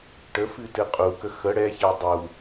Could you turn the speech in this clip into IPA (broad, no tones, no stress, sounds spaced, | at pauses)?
ʈ ə f ɨ t ɨ qʼ u k ə x ə ɽ ɛ ç ɛ dˤ u